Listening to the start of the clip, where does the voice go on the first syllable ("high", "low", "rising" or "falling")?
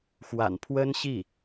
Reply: low